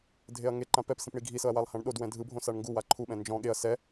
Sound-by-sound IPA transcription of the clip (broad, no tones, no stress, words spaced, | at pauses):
dʱeɐ̯ŋeǃã pɛp sĩpɳiɡʱisɤɐ̯ walˠhãɳɗodwɛ̃ dʱɯbʱõ saɳŋɡuwa ǃʰuɓɛ̃ nd͡ʒɔ̃ ɠeɐ̯ sɛ